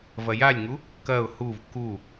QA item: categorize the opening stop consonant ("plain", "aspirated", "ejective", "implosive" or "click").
plain